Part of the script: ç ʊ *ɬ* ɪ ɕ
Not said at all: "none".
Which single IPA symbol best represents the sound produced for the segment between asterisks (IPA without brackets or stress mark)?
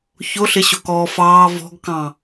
ɬ